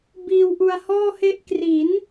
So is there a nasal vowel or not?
no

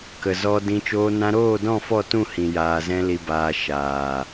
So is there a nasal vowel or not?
yes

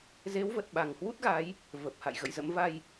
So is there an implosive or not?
yes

